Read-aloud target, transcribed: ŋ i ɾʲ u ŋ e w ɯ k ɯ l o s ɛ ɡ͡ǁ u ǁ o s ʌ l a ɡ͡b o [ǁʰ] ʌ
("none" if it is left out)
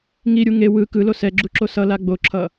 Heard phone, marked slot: ǁʰ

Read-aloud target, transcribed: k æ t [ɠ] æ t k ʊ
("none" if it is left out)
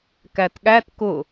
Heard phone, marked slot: ɠ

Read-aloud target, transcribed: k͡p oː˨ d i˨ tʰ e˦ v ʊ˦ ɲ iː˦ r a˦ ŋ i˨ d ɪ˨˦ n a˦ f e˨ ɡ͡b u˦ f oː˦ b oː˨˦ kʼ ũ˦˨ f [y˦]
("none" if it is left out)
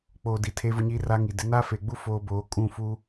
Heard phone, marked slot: u˦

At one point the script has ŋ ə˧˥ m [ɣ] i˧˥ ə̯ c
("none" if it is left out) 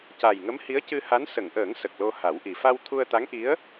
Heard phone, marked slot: h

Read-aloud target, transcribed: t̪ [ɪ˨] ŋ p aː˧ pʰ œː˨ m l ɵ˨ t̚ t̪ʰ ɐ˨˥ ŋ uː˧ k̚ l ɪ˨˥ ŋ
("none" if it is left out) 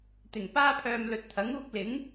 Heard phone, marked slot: ɪ˨˩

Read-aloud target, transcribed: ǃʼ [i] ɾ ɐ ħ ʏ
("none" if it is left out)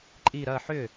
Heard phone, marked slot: i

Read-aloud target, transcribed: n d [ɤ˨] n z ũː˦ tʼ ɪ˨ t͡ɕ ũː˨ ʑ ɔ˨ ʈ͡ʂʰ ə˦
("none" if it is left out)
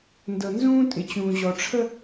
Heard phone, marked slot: ɤ˨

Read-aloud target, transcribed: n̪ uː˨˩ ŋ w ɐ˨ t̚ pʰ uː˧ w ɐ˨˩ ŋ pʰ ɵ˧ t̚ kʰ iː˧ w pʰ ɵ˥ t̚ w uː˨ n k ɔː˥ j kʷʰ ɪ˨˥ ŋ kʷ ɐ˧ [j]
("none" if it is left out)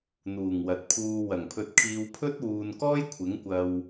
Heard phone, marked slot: w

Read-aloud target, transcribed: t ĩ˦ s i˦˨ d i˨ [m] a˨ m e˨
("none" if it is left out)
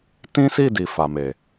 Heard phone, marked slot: f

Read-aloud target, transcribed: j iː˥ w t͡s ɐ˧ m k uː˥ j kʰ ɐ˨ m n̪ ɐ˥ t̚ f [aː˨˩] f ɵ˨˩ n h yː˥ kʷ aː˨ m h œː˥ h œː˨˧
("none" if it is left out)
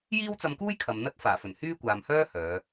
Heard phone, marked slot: aː˨˩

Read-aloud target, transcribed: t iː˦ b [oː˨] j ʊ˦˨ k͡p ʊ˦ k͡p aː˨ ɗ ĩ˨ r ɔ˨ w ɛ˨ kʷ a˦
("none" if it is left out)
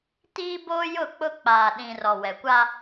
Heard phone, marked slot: oː˦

